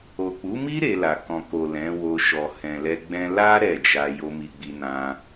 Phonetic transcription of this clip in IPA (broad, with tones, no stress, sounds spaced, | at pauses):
o˨ k͡p u˨˦ m i˦ ɾ e˧ l a˨ k ɔ̃˨ k o˨ l ɛ̃˨˦ w o˧ ʃ ɔ˨ h ɛ̃˨ l ɛ˧ ɡ͡b ɛ̃˦ l a˦ ɾ ɛ˦˨ d͡ʒ a˧ j o˧ m i˨ ɡ͡b i˧ n ã˧